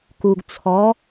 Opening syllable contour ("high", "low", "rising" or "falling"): low